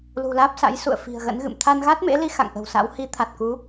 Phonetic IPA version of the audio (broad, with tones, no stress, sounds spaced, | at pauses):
l ṳ˨˩ l aː˦˥ p̚ s a̰˧˥ j s ṵ˧˨ ə̯ f i̤˨˩ ə̯ ɣ ə̰˧˥ n ɣ ɨ̰˧˨ m t̪ʰ a˧ n ɣ a˦˥ t̚ m ḛ˧˥ l i˨˦ x a̰˧˨ ŋ ʔ ə̤˨˩ w s a̰˧˥ w h i˨˦ t̪ʰ a˨˩ t̚ k u˨˦